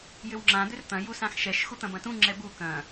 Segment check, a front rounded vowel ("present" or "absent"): present